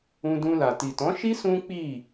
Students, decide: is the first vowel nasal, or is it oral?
nasal